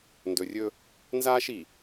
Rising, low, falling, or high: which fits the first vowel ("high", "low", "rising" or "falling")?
low